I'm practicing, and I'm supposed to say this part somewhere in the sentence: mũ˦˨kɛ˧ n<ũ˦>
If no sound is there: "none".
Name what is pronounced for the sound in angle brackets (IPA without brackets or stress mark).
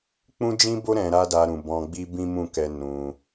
ũ˧